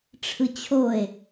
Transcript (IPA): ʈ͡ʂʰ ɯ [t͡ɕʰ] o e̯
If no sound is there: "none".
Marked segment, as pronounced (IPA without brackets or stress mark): t͡ɕʰ